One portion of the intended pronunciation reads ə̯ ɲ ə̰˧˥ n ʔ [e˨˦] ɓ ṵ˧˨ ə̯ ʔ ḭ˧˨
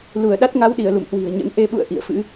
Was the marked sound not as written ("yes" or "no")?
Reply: no